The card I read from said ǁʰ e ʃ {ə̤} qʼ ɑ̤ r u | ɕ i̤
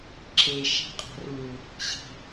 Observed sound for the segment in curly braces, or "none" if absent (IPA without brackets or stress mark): æ̤